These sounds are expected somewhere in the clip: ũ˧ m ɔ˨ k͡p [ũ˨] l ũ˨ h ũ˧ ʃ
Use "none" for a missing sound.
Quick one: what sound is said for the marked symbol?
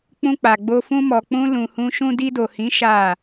ũ˧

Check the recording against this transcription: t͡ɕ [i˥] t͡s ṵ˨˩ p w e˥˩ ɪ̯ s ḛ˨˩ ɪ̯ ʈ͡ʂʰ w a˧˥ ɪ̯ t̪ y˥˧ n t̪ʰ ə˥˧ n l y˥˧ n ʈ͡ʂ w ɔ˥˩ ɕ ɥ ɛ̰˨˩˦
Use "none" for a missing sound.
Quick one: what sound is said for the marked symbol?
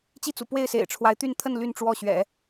i˥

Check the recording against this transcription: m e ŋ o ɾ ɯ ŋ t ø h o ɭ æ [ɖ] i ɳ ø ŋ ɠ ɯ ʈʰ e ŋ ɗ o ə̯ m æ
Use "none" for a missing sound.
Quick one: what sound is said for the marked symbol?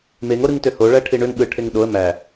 ʈʰ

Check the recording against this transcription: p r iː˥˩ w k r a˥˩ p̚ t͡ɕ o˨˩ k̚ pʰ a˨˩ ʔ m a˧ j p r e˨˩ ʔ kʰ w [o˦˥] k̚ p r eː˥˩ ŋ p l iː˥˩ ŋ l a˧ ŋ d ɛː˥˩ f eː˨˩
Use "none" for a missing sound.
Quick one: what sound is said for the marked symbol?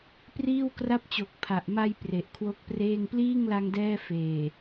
o˦˥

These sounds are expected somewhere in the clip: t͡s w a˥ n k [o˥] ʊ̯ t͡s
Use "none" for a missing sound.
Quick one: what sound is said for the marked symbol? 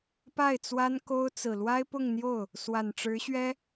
o˥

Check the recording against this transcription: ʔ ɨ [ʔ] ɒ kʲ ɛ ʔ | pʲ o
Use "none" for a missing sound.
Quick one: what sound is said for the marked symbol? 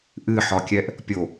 ħ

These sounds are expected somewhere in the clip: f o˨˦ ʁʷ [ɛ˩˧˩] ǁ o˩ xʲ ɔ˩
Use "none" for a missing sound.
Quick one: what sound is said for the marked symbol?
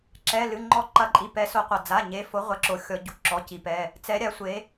ɛ˨˦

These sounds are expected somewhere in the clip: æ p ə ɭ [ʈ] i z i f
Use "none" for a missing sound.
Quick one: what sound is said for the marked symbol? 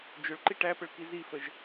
k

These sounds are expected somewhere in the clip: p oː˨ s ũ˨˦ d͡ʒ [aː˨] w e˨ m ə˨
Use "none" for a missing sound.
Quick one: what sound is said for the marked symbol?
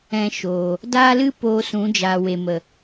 aː˨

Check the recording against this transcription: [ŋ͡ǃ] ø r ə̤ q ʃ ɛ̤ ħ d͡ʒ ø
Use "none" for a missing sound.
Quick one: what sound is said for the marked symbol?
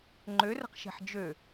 ŋ͡ǃ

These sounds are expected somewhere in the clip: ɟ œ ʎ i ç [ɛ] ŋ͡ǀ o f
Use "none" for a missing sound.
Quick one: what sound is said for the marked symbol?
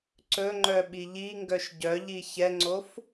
ɛ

